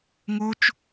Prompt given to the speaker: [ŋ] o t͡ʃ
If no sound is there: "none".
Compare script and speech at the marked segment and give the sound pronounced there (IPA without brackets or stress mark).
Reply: ŋ